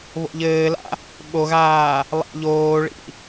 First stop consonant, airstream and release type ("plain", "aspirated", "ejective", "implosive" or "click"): implosive